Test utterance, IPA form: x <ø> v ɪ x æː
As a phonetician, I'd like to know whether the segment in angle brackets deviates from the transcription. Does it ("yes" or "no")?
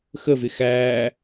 yes